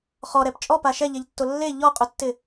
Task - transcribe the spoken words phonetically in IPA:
χ ɔ ɾ ɛ p t͡ʃʼ ɔ p a ʃ ɛ ʎ ɛ ʎ tː o lː e ʎ ɔ qʼ ʊ tː ɪ

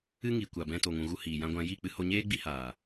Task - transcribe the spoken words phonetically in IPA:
ɨ˦ ŋ i˨ kʷ a˨ b ɛ̃˧ t o˨ ŋ ũ˨ ɣ u˧ h iː˨ j ã˧ ɡʷ ã˧ j i˦˨ k͡p ɨ˧ h o˧ ɲ eː˦ ɡ͡b i˧ h aː˨

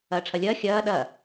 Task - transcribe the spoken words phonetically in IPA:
ɐː ʈ͡ʂʰ ɐ lʲ ɐː xʲ ɐː ɗ ɐ

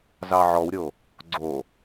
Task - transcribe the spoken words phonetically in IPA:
z ɑ ʕ ɔ w ɾʲ o | ɡ͡ǀ o

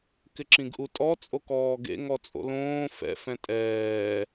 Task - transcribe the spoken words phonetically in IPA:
k ɪ ǁ ĩ ɡ ʔ u tʼ ɔ t͡sʼ o k ɔː ɡ ḛ ŋ ɔ t͡sʼ o̰ l õː f ɛ̰ f ɛ̃ tʼ ɛː

